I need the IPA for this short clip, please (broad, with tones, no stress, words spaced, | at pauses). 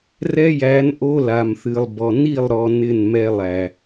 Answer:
rɛ˦jæ˨˦n ʔo˦la˨mθɨ˨lˠbɔ˨ ni˦˨lˠɾɔ˨ nɪ˦˨nmɛ˦lˠæ˨